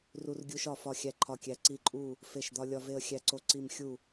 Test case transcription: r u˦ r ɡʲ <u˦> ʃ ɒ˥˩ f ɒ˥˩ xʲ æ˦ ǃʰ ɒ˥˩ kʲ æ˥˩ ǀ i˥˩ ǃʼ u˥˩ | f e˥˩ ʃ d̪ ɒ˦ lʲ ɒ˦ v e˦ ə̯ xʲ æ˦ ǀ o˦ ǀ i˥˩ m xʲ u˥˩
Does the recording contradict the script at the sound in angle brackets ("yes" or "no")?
no